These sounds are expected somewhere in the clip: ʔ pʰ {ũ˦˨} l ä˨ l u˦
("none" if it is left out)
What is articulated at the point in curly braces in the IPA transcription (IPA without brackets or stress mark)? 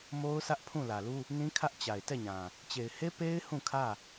ũ˦˨